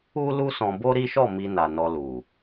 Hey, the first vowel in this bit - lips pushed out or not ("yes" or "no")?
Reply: yes